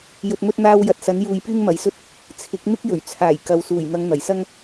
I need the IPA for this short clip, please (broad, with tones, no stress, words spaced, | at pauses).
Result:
jɵ˨t̚mɵ˧t̚n̪aː˧w jɐ˨t̚sɐ˨˥n juː˨j pyː˥ŋmɐ˨˥jsɵ˥t̚ | t͡sʰɪ˨˥k̚ n̪ɪ˥k̚jɵ˨˩ɥ t͡sʰaː˨˩jkɐ˨w suː˨˩jn̪ɐ˨˧ŋ n̪ɐ˨˩jsɐ˥ŋ